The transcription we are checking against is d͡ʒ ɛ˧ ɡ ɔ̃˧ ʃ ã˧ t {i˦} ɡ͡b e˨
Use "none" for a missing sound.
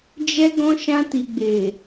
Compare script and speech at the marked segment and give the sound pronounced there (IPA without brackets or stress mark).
i˨